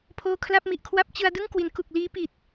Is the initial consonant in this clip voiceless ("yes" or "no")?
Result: yes